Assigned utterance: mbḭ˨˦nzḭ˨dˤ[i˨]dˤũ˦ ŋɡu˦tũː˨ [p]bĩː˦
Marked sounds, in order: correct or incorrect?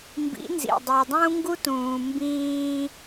correct, incorrect: m

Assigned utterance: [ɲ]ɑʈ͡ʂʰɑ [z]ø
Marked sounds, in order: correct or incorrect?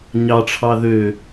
correct, incorrect: ð

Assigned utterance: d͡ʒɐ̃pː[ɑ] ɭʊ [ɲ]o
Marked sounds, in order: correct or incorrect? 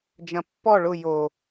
incorrect: ɔ, incorrect: j

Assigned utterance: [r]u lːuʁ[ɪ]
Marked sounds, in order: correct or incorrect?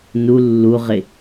incorrect: n, correct

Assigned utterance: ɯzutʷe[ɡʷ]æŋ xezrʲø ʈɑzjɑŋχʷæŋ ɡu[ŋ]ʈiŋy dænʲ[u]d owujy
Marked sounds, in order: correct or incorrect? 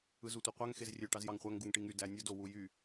incorrect: qʷ, correct, incorrect: o

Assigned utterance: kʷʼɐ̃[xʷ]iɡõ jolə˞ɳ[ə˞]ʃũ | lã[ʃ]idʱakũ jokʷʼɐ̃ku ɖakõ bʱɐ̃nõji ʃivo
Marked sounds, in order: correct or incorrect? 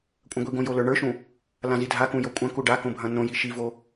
incorrect: ɡʷ, correct, incorrect: z

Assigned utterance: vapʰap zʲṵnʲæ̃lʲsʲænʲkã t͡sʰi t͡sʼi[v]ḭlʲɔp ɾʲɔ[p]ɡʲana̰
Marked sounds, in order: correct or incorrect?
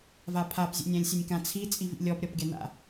correct, correct

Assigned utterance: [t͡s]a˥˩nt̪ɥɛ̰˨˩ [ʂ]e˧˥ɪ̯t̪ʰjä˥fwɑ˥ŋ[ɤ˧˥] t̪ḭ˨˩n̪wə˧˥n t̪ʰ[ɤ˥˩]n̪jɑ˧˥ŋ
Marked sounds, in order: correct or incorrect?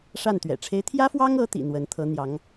incorrect: ʂ, incorrect: ʈ͡ʂʰ, correct, incorrect: ɤ˧˥

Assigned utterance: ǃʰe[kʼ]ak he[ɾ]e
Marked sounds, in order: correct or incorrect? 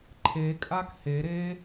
correct, correct

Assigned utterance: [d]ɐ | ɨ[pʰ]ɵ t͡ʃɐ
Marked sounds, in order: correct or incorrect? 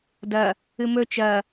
correct, incorrect: m

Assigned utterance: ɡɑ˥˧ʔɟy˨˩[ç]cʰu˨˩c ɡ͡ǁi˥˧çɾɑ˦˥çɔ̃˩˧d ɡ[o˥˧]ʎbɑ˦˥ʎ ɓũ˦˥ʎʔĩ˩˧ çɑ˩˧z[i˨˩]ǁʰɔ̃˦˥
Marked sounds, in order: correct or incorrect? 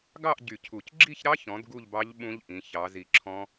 incorrect: none, incorrect: u˥˧, correct

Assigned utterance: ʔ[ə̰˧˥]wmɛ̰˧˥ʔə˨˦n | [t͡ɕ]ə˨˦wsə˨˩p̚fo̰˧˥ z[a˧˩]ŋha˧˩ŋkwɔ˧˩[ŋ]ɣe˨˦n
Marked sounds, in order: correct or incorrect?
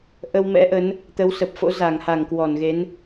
incorrect: ə˧, incorrect: t̪, correct, incorrect: n

